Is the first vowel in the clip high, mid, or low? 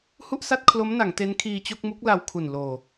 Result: high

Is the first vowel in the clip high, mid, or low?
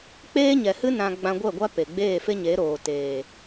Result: mid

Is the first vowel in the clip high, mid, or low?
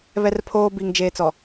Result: mid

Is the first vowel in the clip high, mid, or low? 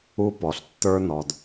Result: high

